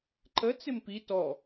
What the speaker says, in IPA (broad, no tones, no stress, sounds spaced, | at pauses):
ǃ ə t͡s ɪ m p i t ɔ